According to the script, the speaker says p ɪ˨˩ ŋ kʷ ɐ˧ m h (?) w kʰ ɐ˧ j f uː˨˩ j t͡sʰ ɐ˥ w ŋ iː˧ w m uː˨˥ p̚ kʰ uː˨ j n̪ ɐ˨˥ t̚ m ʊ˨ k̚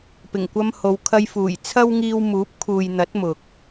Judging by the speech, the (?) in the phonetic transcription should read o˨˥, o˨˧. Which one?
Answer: o˨˧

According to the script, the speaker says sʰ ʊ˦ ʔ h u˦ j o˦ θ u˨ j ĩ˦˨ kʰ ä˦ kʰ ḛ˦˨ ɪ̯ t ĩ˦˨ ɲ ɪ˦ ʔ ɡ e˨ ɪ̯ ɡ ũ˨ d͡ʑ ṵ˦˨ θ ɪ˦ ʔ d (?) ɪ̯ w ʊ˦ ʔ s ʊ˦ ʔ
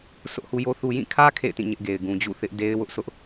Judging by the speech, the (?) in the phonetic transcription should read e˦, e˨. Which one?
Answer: e˦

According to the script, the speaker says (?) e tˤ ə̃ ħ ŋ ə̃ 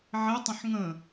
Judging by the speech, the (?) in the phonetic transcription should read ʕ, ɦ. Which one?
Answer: ʕ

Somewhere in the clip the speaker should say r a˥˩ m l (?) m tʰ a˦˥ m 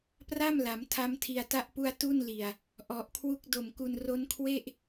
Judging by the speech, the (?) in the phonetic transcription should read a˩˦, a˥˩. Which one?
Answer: a˩˦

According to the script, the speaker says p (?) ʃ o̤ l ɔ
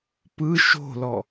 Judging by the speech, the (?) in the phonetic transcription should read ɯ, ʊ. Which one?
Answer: ɯ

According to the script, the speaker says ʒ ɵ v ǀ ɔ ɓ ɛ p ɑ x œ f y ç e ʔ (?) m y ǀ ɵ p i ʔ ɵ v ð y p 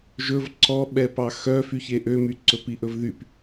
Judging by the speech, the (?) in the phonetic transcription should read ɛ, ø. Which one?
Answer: ø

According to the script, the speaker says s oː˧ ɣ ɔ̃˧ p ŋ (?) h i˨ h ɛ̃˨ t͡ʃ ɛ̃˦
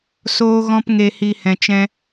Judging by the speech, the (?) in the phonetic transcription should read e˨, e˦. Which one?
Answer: e˨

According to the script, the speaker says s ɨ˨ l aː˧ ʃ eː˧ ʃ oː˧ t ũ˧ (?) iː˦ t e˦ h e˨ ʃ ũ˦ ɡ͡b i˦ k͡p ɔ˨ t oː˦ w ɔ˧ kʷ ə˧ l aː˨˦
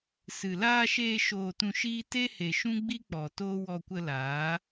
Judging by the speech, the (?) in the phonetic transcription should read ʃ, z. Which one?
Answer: ʃ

